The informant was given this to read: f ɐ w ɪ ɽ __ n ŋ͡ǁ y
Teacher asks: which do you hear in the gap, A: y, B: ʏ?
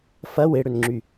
B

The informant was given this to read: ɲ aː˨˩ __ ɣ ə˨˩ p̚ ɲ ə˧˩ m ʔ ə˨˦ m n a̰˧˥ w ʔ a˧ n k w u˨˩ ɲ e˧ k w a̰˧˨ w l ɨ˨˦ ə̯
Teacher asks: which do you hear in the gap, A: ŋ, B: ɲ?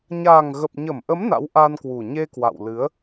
A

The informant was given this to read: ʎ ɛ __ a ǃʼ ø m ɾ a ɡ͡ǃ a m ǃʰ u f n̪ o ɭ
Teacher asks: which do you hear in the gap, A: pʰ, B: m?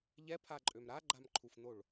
A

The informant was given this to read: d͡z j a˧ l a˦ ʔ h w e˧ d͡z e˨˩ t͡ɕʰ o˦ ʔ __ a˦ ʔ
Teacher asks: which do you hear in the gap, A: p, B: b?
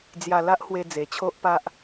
A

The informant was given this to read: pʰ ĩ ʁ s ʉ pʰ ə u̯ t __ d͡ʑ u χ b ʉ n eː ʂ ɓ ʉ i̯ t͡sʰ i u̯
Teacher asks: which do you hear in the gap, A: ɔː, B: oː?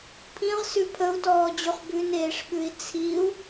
A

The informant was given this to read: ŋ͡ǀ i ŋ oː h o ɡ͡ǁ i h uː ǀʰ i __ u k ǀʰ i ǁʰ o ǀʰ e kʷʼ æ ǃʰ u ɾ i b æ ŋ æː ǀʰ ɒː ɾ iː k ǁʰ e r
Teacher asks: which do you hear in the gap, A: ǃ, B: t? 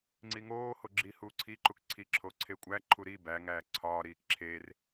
A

